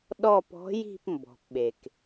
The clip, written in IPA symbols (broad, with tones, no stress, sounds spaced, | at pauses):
ɗ ɔ˦˨ p ɔ̤˨˥ j i̤˦˨ p m b ɔ̤˩ p ɓ e˩ k